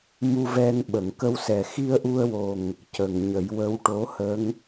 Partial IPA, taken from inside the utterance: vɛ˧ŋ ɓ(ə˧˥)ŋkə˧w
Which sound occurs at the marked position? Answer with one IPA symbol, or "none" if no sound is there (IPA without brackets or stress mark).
ə˨˩˨